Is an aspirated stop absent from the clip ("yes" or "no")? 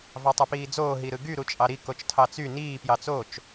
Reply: no